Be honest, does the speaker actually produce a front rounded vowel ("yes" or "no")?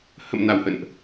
no